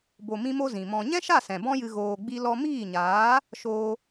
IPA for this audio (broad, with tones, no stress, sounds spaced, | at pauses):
b o˨ m ĩ˧ m o˧ z ĩ˨ m ɔ̃˧ ɲ ɛ̃˦ ʃ a˦˨ s ɛ̃˨ b ɔ̃˦ j ɨ˧ ɣ oː˧ ɡ͡b i˦ l ɔ˧ m iː˦˨ ɲ aː˨˦ | ʃ oː˧